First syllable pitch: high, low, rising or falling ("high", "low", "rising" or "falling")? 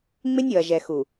high